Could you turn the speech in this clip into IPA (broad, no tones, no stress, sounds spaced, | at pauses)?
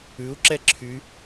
ʉ u̯ ǁ ɛ ǁʰ y